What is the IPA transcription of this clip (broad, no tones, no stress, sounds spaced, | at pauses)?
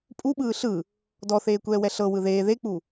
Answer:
pʼ u ɓ ɯː ɬ ɯ | d ɔ θ eː kʷ ɛː w ɛ ɬ ɤ w ɯ ð eː ð e k͡p u